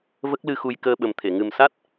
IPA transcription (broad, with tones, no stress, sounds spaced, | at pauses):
v ə˦˥ k̚ l ɨ˧ x u˧ j k əː˧ ɓ ə˨˩ m t̪ʰ e˨˩˨ ŋ ɨ˨˩ m s a˦˥ t̚